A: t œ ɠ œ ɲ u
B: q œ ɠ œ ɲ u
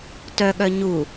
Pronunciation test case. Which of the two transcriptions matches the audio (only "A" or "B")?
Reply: A